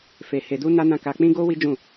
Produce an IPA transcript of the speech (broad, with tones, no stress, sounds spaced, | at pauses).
f e˧ h e˧ d u˦ n a˦ n ã˦˨ k a˧ k͡p ĩ˦ ɡ o˦ w i˦ d͡ʒ ũ˦˨